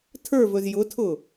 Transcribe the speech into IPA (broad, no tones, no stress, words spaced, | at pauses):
tʰə˞vɵz jʊtʰʊ